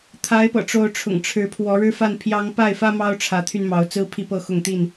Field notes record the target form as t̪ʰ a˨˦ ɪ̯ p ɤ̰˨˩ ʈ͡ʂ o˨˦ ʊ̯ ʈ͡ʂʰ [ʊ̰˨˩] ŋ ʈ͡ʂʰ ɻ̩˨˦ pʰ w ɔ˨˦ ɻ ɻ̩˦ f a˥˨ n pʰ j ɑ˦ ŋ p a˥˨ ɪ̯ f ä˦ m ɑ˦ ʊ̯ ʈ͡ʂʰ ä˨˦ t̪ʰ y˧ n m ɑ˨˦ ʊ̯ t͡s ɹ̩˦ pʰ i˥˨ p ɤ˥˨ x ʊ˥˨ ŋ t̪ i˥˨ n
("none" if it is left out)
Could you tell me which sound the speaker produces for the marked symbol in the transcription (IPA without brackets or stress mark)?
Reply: ʊ̰˨˩